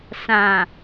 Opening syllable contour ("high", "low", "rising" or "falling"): low